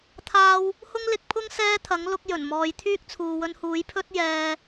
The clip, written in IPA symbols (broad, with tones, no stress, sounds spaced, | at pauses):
t̪ʰ aː˥ w | h ʊ˥ ŋ l ɪ˧ k̚ pʰ ʊ˥ ŋ s ɛː˥ t̪ʰ ɐ˨˥ ŋ l ʊ˧ k̚ j ɵ˨˩ n m ɔː˨˧ j t̪ʰ yː˥ k̚ t͡sʰ uː˨ w ɵ˧ n h uː˨˥ j pʰ ɵ˥ t̚ j ɛː˧